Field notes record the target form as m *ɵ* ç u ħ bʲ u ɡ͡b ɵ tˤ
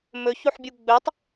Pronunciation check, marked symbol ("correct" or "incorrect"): correct